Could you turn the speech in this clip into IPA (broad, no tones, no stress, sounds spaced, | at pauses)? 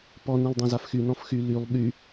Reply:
p ɔ n ẽ lˠ dˤ ẽ z a f x y n ɔ̃ f x y l y lˠ ɓ y